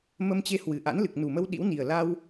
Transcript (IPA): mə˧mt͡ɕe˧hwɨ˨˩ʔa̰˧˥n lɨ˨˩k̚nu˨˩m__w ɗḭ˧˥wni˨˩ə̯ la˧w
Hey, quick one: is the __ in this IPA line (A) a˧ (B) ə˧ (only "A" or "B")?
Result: B